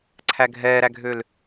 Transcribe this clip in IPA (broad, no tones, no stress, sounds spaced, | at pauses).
ǀʰ æ ɡʱ ɛː ɾ æ ɡʱ ø l